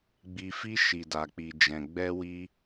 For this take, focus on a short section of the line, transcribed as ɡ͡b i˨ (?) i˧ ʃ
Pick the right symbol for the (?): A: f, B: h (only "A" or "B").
A